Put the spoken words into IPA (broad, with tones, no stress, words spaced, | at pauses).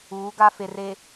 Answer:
uː˨˦ɡa˦fe˨ re˨